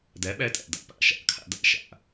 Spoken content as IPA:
dæ˨˦ɓæ˧tʼæ̰˨ da̰˨pa̰˨ ʃa̰˨kʰa̰˧da̰˦ʃa̰˨

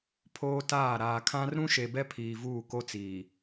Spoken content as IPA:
pʰoː˦taː˦˨ ɾaː˨kʰã˦r ɾũ˦ʃe˨bɛ˦ pʰiː˨vuː˦˨ ko˦t͡siː˨

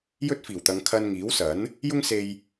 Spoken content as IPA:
jɵ˥t̚fiː˨˩wt̪ɐ˨˧ŋkʰɐ˧n ŋiː˨˥wsɐ˨˥n | jʊ˥ŋ se˧j

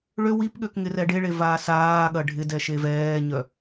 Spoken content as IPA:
ɭø wipɠøk ŋɪrɛɖeɭe vaːsaːɠɐ ɖʱɪdɛ ʃevɛːɲœ

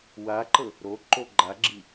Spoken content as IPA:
waǃɤ | ɾo ǃoɡ͡ǃaɡ͡ǁi

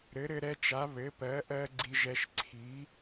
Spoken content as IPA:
ɾɘ˨˥ɾɘ˦ɾɛ˦t͡ʃa˨˥ βɘ˨˥pɜ˨˥ʔɜ˦ ɡ͡ǀi˦ʒɛ˦ʃ ǀʰi˨˥

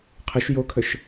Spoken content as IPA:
qʰəʃ jokʰəʃ

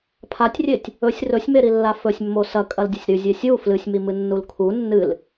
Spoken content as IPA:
pʰatʲrʲetʲ | ɵsʲ rɵsʲmeɾilːa fɵsʲmːo sɐkʼɐldʲɐsʲ ɾʉzʲe sʲu flɨsʲmimɨnːul kʰu nːɨl

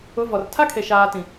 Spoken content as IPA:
ʊ˨˦vɔ˨r tʰa˦kʰe˨ ʃaː˨ tĩ˨

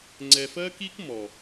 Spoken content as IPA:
ŋ͡ǀɛ˧f ɜ˦ki˦k mɔ˨

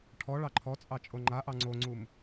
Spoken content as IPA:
ʈʰɔ ɭɑǃʰɔt͡sʼɑ t͡ʃʼoŋ͡ǃaʔɑ ŋ͡ǀoŋ͡ǀum

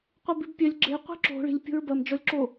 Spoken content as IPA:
qʷebibpʲɜlʲ ɡ͡ǁe qʷi̤ǁo̤ ɭi̤lʲ pʲo̤ɹbɐm d͡ʒɔlʲǁo

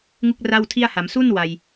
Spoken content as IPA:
ŋu˥˩k̚ra˥˩wtʰi˥˩a̯ ha˩˦m su˥˩n wa˧j

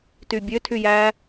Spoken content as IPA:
tybʲø tʰyjæ

